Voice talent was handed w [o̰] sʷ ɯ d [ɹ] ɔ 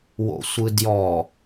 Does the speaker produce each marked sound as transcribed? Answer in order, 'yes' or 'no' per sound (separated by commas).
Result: yes, no